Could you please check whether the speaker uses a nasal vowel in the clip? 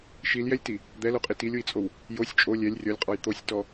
no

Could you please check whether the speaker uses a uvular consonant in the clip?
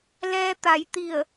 no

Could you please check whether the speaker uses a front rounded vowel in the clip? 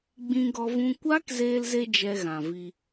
no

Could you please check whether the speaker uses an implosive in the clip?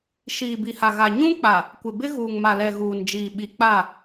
yes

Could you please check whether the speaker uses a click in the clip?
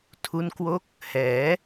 no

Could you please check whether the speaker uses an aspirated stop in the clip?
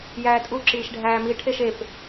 yes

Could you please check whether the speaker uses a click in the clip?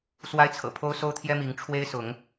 no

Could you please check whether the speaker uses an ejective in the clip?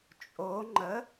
yes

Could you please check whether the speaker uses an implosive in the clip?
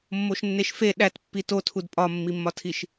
yes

